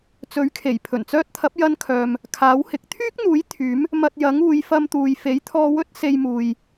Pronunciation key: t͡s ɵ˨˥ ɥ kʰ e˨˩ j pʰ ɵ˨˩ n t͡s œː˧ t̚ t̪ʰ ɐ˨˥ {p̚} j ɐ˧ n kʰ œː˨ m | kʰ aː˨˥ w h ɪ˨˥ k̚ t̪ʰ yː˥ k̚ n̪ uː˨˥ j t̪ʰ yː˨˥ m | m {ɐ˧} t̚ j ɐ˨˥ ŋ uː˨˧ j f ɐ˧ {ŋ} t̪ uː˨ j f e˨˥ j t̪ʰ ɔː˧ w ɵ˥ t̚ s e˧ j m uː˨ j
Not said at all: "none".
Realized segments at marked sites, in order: p̚, ɐ˧, m

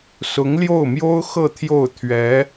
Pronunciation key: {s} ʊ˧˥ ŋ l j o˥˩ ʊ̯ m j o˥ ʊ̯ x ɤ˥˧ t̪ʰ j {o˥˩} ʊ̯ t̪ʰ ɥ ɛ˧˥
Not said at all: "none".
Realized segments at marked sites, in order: s, o˥˩

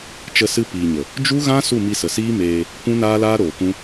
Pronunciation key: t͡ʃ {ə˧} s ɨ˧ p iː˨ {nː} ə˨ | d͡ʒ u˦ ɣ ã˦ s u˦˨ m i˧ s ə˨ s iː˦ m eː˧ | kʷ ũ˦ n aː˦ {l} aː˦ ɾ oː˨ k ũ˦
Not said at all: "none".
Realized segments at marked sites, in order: ə˧, ɲ, l

